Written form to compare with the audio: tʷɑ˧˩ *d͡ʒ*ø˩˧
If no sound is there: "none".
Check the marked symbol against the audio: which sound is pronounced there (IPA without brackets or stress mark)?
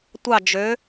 d͡ʒ